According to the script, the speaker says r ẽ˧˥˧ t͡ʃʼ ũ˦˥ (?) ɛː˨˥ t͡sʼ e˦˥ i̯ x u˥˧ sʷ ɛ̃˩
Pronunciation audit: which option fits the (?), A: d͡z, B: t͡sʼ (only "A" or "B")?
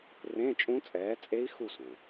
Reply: B